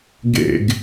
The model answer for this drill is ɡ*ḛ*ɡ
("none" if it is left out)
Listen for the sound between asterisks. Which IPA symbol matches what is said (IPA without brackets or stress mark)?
ḛ